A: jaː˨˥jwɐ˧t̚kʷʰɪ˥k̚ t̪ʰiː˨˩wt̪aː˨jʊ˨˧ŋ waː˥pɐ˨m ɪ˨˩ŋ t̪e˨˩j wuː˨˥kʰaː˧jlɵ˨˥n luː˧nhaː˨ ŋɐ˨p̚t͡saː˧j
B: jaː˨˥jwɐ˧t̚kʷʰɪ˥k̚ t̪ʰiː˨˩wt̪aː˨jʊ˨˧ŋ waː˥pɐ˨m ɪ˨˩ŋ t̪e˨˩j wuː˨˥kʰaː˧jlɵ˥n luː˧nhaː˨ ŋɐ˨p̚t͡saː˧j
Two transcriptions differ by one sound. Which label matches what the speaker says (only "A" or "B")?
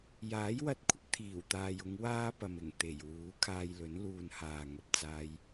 A